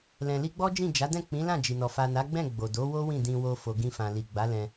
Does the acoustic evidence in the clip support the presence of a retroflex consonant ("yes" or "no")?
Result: no